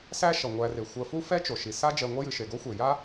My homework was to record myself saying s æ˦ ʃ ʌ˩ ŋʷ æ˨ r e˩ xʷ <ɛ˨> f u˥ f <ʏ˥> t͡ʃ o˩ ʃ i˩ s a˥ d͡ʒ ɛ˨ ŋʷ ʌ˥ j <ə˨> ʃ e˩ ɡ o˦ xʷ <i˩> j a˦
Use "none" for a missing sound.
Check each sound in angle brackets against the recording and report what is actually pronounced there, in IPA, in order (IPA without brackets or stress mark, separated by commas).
ɜ˨, ɛ˥, ɨ˨, e˩